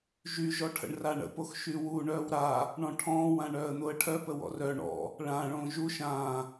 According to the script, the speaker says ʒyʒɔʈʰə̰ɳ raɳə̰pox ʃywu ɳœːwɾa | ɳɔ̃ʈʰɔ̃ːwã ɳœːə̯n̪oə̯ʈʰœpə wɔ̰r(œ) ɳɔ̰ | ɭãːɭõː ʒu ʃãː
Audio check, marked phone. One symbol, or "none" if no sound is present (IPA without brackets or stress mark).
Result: œ